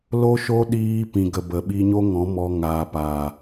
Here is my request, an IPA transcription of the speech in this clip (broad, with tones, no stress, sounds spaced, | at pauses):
l o˦ ʃ o˦ ɗ iː˧ p ĩ˨ ɡ ə˨ b ə˨ ɓ i˧ ɲ o˦ ŋ ɔ̃˨˦ m ɔ˧ ŋ aː˨ p aː˨